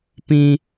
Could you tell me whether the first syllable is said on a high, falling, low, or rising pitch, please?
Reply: high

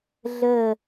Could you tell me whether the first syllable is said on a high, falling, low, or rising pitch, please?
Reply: falling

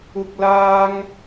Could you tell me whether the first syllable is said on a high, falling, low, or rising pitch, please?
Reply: high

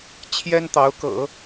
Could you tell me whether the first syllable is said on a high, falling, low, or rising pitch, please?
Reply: high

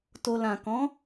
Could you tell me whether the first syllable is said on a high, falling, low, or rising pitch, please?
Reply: low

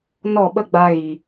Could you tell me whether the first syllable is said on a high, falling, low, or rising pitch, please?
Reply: falling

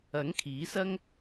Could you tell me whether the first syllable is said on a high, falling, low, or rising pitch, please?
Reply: rising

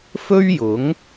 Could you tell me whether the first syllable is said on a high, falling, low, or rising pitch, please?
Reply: high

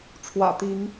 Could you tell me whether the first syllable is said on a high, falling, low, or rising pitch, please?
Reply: low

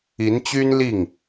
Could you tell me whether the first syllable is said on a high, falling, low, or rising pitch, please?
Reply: rising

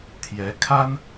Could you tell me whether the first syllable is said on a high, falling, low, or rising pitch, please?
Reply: rising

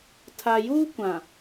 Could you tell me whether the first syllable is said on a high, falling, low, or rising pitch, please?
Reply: low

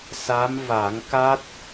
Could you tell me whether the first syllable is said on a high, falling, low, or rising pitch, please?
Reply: rising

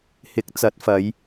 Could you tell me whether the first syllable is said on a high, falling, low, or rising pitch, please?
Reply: rising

